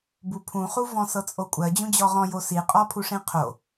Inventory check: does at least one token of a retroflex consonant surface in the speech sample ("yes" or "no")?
yes